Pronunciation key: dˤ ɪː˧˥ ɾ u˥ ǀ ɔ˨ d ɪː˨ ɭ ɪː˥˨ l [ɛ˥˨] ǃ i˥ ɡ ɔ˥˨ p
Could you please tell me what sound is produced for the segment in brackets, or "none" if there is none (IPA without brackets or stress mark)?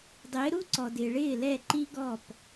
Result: ɛ˥˨